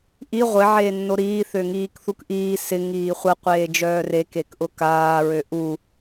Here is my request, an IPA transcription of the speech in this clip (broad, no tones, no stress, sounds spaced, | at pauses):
ʔ i ʁʷ ɪ ʕ eː nː o ɾ iː θ ø ŋ iː k θ u k ʔ iː s ɪ ŋ iː χʷ ə qʷ eː d͡ʒ œː r e k e k ʔ ʊ k aː ɹ ø ʔ u